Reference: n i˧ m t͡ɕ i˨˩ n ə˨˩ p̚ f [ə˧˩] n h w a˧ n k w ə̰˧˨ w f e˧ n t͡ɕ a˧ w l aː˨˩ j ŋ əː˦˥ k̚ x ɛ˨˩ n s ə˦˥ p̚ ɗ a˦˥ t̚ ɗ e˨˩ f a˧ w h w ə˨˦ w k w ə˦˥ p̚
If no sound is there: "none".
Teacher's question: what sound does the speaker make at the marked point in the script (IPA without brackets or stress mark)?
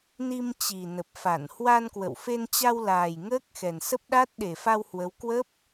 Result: a˧˩